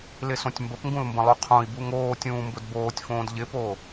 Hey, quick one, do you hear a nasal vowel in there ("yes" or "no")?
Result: yes